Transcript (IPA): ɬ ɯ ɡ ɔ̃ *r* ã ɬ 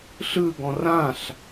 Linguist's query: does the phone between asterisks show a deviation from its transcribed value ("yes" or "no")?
no